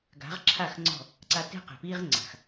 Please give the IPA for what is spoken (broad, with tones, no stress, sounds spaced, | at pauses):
ɡ a̤˨˦ ʁ ǁʰ a˦˨ x ŋ͡ǀ ɔ̤˦˨ | ǀ a˧ t e̤˦ q e̤˨ p iː˦ ʁ ŋ͡ǀ a̤˨ x